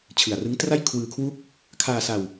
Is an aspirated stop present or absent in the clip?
present